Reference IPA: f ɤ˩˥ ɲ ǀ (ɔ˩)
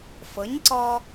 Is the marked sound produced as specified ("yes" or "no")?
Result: no